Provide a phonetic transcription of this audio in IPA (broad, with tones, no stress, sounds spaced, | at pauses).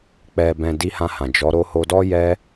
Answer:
k͡p ɛ˨ b ɛ̃˨ d i˧ h ã˧ h ã˨ d͡ʒ ɔ˨˦ ɾ o˧ h o˧ d ɔ˦ j ɛ˦